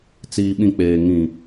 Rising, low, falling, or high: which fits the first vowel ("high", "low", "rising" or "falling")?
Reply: low